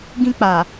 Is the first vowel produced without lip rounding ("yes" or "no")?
yes